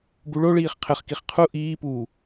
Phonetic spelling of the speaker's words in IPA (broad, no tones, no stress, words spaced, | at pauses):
buɭoɭiːχ qʰɘχkiχ qʰu ʔiːpuː